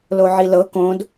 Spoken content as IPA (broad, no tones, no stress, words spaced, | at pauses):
loʕilɤ kõd